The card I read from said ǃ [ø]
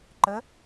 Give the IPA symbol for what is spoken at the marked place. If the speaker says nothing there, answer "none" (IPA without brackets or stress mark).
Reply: ə